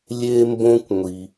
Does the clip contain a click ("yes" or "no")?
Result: no